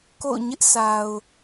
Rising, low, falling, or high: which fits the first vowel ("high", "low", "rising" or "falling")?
falling